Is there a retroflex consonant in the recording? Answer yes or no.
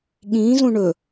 yes